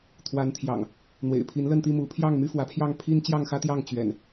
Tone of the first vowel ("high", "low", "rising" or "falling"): rising